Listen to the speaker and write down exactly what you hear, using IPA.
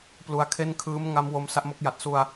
p l u˧ a̯ kʰ e˥˩ n kʰ ɯː˦˥ m ŋ a˦˥ m w o˧ m s a˦˥ ʔ m o˦˥ k̚ j a˨˩ t̚ s u˧ a̯

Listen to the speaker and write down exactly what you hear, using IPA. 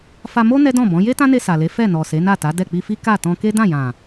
f a˧ m o˦ n ɛ˦ d ɔ̃˦˨ b ɔ̃˨˦ j e˦ t ã˦ n e˧ s a˨ l e˨˦ f ɛ˦˨ n ɔ˨ s e˨˦ n a˦˨ t a˨˦ d ɛ˦˨ k͡p i˧ f i˦ k a˦˨ t ɔ̃˧ k e˦ d ã˦˨ j ã˨

